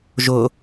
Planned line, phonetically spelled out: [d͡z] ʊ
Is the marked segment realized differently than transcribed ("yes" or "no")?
yes